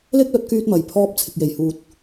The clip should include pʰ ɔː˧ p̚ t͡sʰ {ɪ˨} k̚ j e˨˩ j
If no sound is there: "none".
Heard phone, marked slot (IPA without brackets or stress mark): ɪ˨